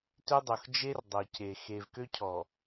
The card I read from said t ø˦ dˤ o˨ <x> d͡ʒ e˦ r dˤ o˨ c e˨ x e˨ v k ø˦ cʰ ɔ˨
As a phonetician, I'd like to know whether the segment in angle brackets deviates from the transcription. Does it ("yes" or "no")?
no